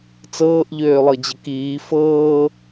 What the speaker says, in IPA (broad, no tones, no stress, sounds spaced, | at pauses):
t͡s ɤː ʔ ʎ øː lˠ ɤ d͡ʑ ə k iː f ɤː